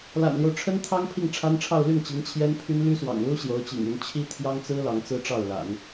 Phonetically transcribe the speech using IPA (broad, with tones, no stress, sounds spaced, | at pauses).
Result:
l a̰˨˩ n l j o˦ ʊ̯ ʈ͡ʂʰ ə˥ n t̪ʰ ɑ˥ ŋ pʰ i˥˩ ŋ ʈ͡ʂʰ a˥ n ʈ͡ʂʰ ɑ˥˧ ʊ̯ l y˥˩ n t͡ɕ i˧˥ ŋ t͡ɕʰ j ɛ˥ n pʰ y˥ n l y˥ s w ɑ̰˨˩ ŋ l u˥ ɕ j o˧˥ ʊ̯ t͡ɕ ḭ˨˩ ŋ y˧˥ n t͡ɕʰ i˥ t̪ʰ j ɑ˥ ŋ t͡s ɹ̩˥ l ɑ˧˥ ŋ t͡s ɹ̩˥ ʈ͡ʂ ɑ˥˩ ʊ̯ l a̰˨˩˦ n